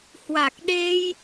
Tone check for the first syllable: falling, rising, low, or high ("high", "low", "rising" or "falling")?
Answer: low